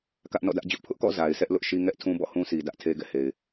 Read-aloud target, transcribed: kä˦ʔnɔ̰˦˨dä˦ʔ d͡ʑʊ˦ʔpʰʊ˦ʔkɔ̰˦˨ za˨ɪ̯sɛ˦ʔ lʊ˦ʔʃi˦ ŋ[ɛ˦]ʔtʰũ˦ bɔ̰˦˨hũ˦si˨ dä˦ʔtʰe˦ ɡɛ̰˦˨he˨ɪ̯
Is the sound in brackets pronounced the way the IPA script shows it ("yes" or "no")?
yes